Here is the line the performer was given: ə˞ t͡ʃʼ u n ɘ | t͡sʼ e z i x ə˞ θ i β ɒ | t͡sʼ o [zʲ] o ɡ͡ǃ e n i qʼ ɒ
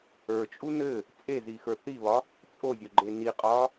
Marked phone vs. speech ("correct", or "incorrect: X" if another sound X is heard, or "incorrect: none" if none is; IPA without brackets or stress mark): correct